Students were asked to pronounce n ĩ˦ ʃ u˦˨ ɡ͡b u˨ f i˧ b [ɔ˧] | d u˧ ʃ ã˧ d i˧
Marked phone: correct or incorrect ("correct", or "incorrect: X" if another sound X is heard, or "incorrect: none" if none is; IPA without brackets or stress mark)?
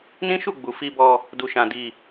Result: correct